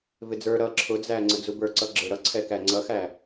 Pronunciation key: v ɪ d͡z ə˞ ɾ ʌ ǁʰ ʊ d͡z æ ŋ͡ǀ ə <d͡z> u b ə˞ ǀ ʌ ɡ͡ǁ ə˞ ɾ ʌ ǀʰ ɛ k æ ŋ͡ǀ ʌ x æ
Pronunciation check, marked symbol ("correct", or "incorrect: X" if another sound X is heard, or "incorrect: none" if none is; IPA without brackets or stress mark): correct